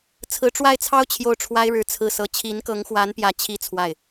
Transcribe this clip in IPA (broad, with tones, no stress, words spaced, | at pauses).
t͡sʰɹ̩˧˥ʈ͡ʂwa˥˩ɪ̯t͡sʰɑ˥ʊ̯ t͡ɕʰjo˥˩ʊ̯ʈ͡ʂʰwa˥ɪ̯ɻɻ̩˧˥ t͡sʰɹ̩˥˧sɤ˥˩ t͡ɕʰi˧˥nkɤ˧˥ŋxwa˧˥n pjä˥˩t͡ɕʰi˥ t͡sʰwa˥˩ɪ̯